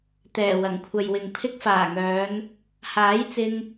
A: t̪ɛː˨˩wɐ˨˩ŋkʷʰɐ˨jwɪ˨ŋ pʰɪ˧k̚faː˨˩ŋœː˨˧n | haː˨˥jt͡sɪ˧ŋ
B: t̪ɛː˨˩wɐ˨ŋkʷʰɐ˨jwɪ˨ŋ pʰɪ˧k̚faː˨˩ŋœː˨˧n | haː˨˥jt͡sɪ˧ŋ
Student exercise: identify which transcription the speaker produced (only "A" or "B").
A